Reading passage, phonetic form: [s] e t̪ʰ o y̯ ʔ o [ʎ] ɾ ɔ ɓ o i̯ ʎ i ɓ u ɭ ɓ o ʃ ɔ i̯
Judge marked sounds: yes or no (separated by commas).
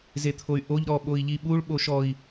no, yes